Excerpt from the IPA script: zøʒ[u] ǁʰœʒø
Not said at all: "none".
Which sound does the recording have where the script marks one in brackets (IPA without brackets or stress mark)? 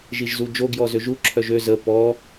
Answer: u